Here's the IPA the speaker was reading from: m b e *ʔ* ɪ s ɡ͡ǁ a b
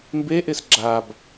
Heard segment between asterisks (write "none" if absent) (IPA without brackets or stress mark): ʔ